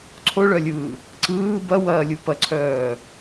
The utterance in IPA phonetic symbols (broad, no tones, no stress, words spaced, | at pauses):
ǀʰoɭœlʲɯː | ǀɯː bɐwɐːlʲu pɐǀʰœː